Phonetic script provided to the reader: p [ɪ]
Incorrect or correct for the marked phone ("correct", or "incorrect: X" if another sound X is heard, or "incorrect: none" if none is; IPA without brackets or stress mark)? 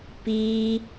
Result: incorrect: i